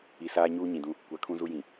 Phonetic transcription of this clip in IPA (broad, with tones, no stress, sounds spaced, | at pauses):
i˨ s aː˦ ɲ uː˦ ɲ ĩ˨ d ũ˦ | kʷ a˨ kʰ ũ˦ z u˦ j ĩ˨